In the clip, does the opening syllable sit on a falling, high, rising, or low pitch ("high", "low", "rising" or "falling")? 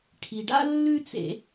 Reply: low